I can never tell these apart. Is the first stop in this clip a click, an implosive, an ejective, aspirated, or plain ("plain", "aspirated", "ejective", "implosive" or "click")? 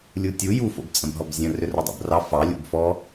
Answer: plain